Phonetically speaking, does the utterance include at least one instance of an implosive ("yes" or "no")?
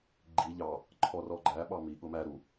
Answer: yes